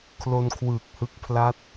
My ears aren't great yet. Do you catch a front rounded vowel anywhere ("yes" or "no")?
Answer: no